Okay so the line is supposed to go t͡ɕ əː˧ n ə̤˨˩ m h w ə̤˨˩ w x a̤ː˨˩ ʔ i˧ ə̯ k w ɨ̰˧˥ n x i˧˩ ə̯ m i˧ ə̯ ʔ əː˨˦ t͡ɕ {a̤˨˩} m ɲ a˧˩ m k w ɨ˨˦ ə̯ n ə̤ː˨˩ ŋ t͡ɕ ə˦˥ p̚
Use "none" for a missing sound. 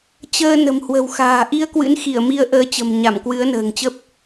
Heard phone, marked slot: ə̤˨˩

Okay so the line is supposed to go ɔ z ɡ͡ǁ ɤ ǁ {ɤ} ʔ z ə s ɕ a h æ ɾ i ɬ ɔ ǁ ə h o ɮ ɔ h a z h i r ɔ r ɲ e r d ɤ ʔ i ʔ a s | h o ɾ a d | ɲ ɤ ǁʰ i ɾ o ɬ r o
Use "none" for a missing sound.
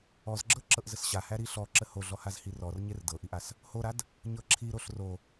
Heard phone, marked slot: ɤ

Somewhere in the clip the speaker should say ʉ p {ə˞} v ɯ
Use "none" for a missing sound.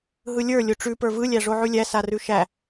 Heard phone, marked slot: ə˞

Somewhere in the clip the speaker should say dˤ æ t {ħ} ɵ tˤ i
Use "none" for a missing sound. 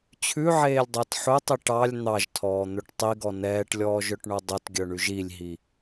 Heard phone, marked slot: ħ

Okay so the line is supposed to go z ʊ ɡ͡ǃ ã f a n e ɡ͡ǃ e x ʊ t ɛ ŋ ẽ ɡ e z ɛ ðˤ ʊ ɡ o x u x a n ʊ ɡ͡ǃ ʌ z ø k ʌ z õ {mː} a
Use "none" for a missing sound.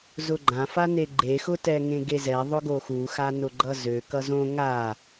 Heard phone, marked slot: ŋ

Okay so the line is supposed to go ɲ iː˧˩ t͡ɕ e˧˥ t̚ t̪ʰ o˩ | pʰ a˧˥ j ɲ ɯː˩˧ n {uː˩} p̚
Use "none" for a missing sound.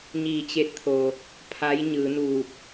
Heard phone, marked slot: uː˧˩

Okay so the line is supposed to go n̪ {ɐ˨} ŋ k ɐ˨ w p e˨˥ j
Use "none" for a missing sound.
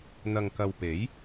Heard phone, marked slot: ɐ˨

